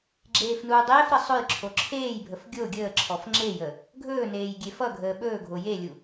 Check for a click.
present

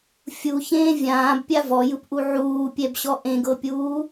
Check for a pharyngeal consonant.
present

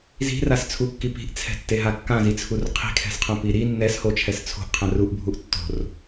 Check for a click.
absent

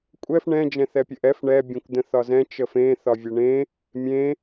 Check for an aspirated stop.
absent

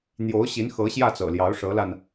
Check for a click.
absent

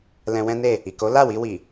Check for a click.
absent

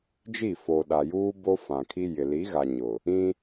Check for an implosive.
present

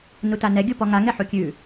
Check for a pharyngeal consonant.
present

